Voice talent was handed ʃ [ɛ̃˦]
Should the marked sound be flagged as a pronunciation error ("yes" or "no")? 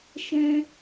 no